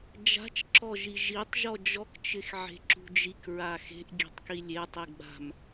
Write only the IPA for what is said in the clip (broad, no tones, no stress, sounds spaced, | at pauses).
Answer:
d͡ʒ a̤ t͡ʃ ǁ ɔ ʒ i ʒ i tˤ ʒ ɔ d͡ʒ ɔ k t͡ʃ ɪ x ʕ e̤ ǁ ṳ d͡ʒ i k ɹ a x e̤ ʔ ɡʲ e̤ tˤ k i lʲ e tˤ i ɡ͡b a̤ m